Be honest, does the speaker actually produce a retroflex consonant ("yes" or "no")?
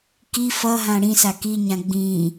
yes